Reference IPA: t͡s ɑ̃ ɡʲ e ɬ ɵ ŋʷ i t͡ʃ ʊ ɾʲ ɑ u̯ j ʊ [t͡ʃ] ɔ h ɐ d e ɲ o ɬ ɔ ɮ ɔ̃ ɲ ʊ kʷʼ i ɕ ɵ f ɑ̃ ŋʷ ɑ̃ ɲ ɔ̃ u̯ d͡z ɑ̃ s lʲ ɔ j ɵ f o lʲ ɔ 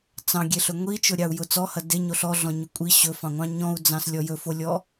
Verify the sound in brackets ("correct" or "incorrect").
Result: incorrect